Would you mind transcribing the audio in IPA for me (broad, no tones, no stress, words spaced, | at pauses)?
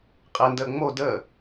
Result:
qʼendəː ŋ͡mo dəː